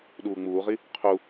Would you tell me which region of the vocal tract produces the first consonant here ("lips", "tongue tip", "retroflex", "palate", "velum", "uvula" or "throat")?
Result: tongue tip